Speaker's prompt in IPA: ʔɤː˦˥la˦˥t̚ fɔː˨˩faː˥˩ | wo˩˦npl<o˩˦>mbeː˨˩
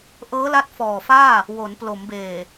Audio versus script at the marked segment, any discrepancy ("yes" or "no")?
no